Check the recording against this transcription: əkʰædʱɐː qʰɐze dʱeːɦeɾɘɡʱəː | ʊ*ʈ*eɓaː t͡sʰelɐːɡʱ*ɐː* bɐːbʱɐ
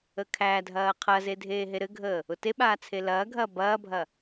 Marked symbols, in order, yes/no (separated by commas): no, yes